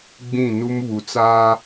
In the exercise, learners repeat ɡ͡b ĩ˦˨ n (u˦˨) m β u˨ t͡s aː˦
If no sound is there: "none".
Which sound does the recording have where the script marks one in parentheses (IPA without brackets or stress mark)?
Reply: u˦